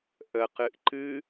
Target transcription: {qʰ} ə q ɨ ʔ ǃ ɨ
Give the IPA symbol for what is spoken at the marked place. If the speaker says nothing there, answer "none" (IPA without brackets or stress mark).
ʔ